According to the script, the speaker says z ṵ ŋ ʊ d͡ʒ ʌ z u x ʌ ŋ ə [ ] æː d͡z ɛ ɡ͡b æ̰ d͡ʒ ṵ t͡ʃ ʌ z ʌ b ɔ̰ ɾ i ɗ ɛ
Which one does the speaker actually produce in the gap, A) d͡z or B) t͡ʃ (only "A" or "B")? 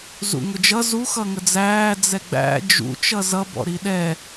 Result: A